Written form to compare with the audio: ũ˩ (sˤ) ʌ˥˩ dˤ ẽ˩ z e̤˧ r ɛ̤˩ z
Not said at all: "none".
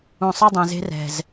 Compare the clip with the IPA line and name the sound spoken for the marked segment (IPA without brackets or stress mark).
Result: sˤ